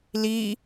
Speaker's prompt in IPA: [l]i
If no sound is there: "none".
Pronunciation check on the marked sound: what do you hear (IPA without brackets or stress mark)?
l